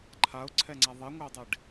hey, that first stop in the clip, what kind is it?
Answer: click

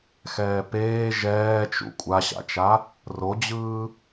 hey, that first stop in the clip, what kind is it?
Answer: plain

